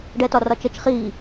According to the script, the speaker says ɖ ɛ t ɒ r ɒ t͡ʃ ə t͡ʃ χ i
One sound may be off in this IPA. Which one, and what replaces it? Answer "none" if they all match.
none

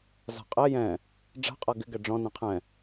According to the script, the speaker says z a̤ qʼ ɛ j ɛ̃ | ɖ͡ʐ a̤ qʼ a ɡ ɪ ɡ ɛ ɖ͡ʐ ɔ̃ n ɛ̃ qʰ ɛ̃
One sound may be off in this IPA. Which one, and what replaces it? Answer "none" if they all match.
none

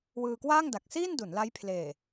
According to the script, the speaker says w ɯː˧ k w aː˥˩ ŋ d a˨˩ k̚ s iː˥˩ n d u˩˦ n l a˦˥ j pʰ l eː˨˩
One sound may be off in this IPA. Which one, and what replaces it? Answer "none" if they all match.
none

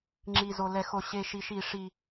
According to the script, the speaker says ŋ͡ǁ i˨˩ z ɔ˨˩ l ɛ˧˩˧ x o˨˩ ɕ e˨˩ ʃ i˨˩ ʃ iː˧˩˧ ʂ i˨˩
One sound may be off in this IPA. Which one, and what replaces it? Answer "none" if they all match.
ɔ˨˩ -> o˨˩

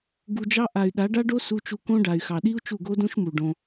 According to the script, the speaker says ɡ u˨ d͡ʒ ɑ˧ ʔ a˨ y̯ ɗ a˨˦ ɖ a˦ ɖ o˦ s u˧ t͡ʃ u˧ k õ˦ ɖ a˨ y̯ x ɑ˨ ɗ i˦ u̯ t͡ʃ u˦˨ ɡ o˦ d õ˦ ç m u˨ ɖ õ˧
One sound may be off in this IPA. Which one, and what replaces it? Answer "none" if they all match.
ç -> ʃ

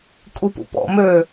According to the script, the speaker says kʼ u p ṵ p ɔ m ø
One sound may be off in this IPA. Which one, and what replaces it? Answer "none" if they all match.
ɔ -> ɔ̰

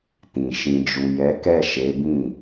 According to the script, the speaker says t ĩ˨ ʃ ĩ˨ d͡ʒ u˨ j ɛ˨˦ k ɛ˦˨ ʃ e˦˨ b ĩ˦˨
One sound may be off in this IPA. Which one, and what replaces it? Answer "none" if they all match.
e˦˨ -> e˨˦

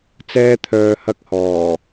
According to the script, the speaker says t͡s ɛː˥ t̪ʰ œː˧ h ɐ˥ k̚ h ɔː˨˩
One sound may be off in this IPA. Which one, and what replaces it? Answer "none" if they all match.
none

